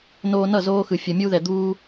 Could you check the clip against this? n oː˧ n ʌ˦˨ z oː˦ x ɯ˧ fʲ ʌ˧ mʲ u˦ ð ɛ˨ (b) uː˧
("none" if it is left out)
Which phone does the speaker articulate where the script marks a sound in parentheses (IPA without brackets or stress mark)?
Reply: d̪